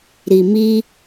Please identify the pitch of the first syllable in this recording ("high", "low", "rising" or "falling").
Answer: low